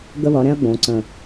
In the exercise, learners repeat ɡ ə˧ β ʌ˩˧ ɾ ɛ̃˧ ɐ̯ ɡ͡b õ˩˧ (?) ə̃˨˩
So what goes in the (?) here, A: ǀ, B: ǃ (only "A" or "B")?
A